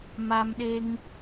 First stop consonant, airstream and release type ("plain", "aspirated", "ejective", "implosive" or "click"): implosive